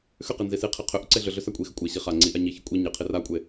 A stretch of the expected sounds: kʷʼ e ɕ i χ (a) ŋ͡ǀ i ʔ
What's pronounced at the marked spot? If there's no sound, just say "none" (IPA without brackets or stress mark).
a